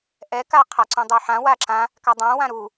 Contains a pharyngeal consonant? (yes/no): yes